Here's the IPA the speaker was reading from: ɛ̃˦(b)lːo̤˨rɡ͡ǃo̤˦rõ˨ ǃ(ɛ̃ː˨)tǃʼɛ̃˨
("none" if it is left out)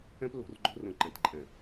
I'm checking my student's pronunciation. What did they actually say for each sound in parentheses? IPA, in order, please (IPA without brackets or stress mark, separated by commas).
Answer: p, ɛ̃˨